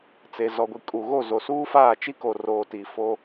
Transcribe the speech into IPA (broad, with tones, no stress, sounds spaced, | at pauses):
t͡s e˨ z ɔ˨ ɡʷ i˨ kʼ u˨ ɣ o˦˨ z o˨ s uː˦ f aː˦˨ t͡ʃ i˦ k o˨ r oː˨ t i˨ f o˦